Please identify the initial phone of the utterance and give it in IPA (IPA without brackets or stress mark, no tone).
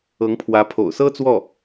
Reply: ɤ